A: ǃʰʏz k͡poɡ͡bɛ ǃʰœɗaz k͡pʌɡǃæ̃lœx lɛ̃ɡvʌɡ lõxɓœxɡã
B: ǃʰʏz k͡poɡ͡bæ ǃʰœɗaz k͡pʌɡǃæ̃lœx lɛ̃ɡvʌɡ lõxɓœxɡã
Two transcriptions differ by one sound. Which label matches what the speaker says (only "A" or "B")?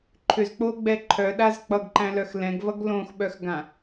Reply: A